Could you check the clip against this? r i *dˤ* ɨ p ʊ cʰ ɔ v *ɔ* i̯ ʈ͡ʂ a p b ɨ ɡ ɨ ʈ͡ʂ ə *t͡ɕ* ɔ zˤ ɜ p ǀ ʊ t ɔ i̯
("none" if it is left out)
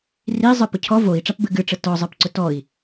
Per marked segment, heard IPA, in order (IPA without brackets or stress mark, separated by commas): zˤ, o, t